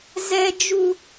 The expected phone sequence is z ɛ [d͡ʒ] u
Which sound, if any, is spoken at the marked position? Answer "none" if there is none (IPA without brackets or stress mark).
d͡ʒ